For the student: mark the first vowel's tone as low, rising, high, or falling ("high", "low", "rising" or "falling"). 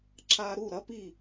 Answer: high